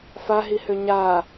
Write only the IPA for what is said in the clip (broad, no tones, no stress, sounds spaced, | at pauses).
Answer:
f a ɦ i h ø ɲ a